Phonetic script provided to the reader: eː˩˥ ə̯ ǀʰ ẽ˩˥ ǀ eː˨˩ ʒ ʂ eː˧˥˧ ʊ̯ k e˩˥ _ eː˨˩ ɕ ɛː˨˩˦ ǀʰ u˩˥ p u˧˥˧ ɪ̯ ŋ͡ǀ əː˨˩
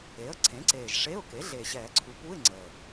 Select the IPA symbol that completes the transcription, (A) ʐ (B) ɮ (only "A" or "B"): B